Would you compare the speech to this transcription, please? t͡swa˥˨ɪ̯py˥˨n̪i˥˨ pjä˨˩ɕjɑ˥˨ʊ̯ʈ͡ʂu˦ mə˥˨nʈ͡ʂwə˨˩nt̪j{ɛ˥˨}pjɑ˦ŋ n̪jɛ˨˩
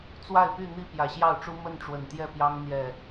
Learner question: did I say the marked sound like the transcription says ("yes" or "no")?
yes